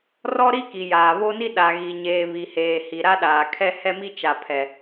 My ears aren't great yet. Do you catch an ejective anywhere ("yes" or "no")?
no